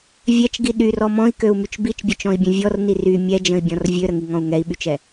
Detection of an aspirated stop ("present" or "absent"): absent